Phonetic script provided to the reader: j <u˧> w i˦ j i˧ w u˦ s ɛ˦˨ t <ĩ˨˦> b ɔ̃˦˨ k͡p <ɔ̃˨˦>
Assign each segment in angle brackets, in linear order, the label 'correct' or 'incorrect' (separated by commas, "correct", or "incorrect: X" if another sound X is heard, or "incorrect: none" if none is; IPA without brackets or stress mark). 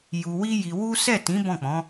correct, correct, correct